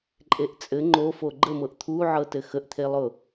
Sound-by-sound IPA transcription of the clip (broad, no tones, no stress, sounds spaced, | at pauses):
ǃʼ e ʔ t͡sʼ ɘ ŋ͡ǃ o f o ɡ͡ǃ ə m ɤ ʔ t̪ʰ u ʕ ɤ t ɘ x ə ʔ t̪ʰ e lˠ ʊ